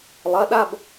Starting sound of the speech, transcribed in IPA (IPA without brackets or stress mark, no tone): lˠ